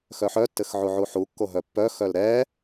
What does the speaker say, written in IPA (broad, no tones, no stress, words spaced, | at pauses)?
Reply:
xœħœtːɘx ʕuʕuħukːo ɦœpːœxœl ɾɛ